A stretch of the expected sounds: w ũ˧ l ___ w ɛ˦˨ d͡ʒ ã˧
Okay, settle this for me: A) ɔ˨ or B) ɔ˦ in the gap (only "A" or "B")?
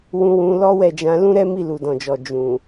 B